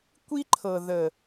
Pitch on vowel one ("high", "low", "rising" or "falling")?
high